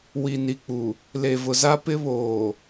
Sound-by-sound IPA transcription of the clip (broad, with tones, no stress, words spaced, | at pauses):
wi˨ni˨k͡pu˨ | le˨ vʊ˨za˦ pɪ˦βoː˨